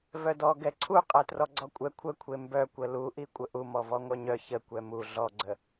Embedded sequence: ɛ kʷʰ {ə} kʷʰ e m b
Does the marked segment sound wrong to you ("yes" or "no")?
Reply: no